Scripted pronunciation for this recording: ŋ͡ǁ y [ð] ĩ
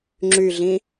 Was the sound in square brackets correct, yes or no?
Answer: no